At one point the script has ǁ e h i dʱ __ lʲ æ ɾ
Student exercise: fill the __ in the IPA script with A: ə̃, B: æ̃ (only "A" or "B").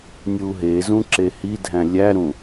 B